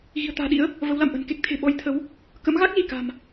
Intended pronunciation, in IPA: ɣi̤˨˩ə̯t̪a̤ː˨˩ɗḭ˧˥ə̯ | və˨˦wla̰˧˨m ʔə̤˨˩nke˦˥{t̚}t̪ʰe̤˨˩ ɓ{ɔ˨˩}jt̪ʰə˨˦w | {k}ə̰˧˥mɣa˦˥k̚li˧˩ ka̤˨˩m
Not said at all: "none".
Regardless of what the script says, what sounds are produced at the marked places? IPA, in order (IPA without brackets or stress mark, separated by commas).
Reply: k̚, ɔ˨˦, k